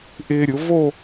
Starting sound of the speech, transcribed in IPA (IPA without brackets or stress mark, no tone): ʔ